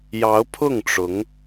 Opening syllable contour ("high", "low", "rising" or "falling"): rising